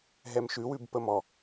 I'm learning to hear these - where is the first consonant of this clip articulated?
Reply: throat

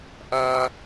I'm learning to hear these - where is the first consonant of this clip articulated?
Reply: throat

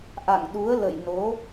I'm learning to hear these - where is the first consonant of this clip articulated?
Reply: throat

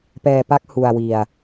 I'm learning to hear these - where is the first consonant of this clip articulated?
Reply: lips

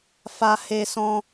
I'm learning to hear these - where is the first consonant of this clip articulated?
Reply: lips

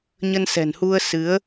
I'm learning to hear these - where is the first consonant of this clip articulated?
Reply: palate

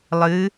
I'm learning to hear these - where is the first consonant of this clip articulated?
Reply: tongue tip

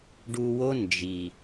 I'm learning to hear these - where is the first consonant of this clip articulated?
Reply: retroflex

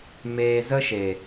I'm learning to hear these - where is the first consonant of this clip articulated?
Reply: lips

